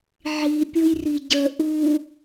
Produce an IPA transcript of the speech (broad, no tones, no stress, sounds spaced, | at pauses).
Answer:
ʕ i pʲ ʊ j r i ɟ ə ʔ u